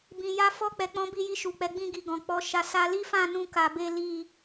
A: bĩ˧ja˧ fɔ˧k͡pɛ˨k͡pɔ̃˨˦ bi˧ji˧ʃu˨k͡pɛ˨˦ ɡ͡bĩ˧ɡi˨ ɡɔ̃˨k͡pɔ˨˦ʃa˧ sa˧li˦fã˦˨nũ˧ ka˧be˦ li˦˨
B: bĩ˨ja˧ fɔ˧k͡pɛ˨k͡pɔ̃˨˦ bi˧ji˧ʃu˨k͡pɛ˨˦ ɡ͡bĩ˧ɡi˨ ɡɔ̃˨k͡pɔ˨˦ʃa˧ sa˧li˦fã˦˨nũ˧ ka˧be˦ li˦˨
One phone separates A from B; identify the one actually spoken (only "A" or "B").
B